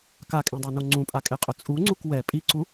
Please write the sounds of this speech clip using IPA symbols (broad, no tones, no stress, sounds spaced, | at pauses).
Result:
k a kʼ ẽ dˤ a n o ŋ͡ǀ ũ pʼ a kʼ e qʼ ʊ t͡sʼ u ŋ͡ǀ u k w ɛ pʼ i ǀ u